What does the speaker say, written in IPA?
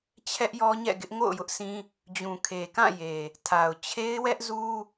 t͡ɕʰ ɛ˦ ʔ j ɔ˦ ɲ ɛ̰˦˨ ɡ ɪ˦ ʔ ŋ o̰˦˨ ʊ̯ j ʊ˦ ʔ sʰ ĩ˦ | d͡ʑ ũ˨ kʰ e˨ k ã˦˨ j e˨ | tʰ a˨ ʊ̯ t͡ɕʰ e˦ ɪ̯ w ɛ˦ ʔ z u˦

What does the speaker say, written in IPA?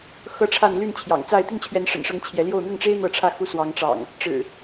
x ɤ˦ ʈ͡ʂʰ a˥˨ n l y˥˨ n t͡ɕʰ j ɑ̰˨˩ ŋ t͡s a˥˨ ɪ̯ t̪ i˥˨ n t͡ɕʰ ɥ ɛ˨˦ n ʂ ə̰˨˩ n ʂ ɤ˨˦ ŋ t͡ɕʰ j ɛ˨˦ l j o˥˨ ʊ̯ n̪ ʊ˥˨ ŋ ʈ͡ʂ e˦ ɪ̯ n̪ ɤ˥˨ ʈ͡ʂʰ ä˥˨ x u˦ s w ɑ˨˦ ŋ ʈ͡ʂ ɑ̰˨˩ ŋ | ʈ͡ʂ ɻ̩˨˩

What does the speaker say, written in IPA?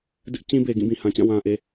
d ɪ˦ ʔ t͡ɕ ĩ˦ b e˨ ɡ ĩ˦˨ b ĩ˨ h ã˨ t͡ɕ ã˦˨ w ã˦ ʔ e˦

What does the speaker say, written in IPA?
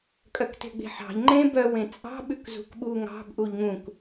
kʼ œ k t e̤ ɡ͡b e̤ ħ ɑ̤ ʎ ŋ͡ǃ ẽ b œ w ẽ t͡sʼ ɑ̤ ɓ ʉ k z ṳ k ɓ u ŋ ɑ̤ b ʔ u ʎ ŋ ũ k

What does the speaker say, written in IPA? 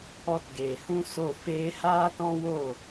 ɔ˧ t ɡ eː˨ h ũ˦ s o˦˨ f eː˧ h aː˦ t ɔ̃˦ w o˦˨

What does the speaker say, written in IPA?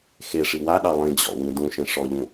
x e ʂ i w a ɗ ɑ lˠ ĩ d͡ʑ ɔ̰ w ĩ d ũ ʃ ẽ ʂ ɔ ʎ ũ

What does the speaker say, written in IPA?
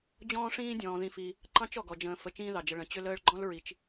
d͡ʑ ɔ̃ː˦ ʂ ĩː˦ dʲ ɔ̃ː˩ ð ĩ˨ f i˩ | ǃ ɑ̃˥ t͡ʃ ɔ˩ ɡ ɔ˩ d͡ʒ ə̃ː˨ f ə˨ t͡ʃ ĩː˦ ð ɑ˩ d͡ʒ ə˨ ɭ ə̃˩ t͡ɕ ʏ˦ l əː˦ ɭ ɡ͡ǃ ɔ̃˥ l ɹ i˩ t͡ʃ

